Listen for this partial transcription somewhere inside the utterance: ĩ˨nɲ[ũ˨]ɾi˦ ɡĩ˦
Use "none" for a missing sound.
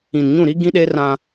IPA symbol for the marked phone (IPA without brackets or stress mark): ũ˦˨